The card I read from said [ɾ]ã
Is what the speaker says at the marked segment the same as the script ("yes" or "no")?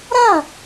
yes